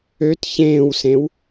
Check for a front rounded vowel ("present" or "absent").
present